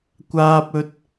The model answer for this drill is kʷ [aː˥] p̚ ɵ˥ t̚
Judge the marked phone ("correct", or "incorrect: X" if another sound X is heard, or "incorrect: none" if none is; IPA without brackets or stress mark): correct